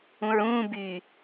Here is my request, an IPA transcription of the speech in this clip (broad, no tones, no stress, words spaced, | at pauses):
ũɹũː by